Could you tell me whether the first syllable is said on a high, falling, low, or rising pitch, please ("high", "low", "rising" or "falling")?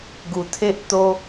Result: low